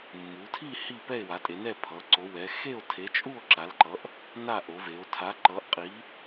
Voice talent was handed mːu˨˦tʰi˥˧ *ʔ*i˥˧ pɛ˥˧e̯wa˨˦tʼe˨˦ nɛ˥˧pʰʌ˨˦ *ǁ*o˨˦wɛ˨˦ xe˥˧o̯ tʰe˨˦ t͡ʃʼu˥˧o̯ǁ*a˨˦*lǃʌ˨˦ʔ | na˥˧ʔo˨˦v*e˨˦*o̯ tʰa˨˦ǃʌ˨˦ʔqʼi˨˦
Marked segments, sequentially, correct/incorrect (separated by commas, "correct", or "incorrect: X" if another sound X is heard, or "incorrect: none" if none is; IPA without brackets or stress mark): incorrect: h, incorrect: ǀ, correct, correct